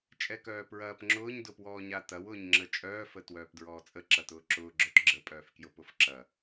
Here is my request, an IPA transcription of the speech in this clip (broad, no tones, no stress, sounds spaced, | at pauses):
t͡ʃʼ ɛ k œː p ɹ ɐː p ŋ͡ǁ ʊː ɲ d ʊ p w ɔː ɲ a t ɐ w ʊː ɲ ŋ͡ǁ ə t͡ʃʼ œː f ə t w œː p d ɹ ɔː t͡sʼ ə ǁ ɐ t ʊː ǁ ʊː ɡ͡ǁ œ t ɡ͡ǁ ə pʼ œː f k j ʊ p ʊ f ǁ ɐ